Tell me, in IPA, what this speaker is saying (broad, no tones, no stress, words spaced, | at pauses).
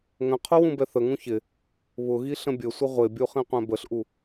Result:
ŋə̃qʰʊ wũbɛθəŋũ çɪ | βʊɣi ɬə̃bʲəsʷə ʁʷɪbʲu χĩqʷɛ̃bəɬʔu